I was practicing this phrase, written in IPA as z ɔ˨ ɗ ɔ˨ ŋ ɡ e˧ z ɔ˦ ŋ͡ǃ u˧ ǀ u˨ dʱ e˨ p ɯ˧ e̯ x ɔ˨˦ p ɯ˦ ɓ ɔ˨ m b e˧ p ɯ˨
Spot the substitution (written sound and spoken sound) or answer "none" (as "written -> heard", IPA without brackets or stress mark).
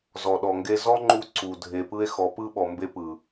none